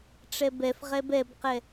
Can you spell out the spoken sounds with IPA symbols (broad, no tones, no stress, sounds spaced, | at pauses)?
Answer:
ʈ͡ʂ ɛ b ɛ f ʁ ɛ b ɛ b q ɛ